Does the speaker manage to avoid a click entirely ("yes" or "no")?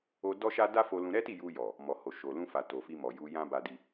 yes